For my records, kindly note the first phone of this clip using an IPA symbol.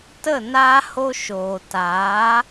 t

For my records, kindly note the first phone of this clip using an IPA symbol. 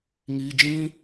ŋ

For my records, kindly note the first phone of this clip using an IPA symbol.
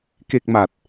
k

